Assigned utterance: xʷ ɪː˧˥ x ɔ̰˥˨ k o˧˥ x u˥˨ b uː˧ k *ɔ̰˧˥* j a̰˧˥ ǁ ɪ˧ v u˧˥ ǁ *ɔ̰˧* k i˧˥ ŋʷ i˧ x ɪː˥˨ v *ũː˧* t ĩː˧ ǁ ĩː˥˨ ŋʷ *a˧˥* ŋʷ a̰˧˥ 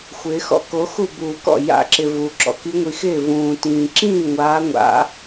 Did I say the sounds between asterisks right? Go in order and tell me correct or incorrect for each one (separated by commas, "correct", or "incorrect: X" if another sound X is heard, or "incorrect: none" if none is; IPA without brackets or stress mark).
incorrect: ɔ̰˥˨, correct, correct, incorrect: aː˧˥